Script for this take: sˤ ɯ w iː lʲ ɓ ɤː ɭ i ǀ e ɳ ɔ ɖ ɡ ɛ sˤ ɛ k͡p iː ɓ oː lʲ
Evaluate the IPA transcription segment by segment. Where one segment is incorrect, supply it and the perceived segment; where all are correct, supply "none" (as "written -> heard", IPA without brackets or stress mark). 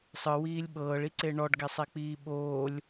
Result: none